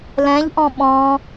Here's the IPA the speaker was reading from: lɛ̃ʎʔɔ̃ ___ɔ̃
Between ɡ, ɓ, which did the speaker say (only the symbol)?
ɓ